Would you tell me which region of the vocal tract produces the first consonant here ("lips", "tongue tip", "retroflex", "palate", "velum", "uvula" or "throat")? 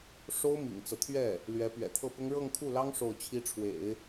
retroflex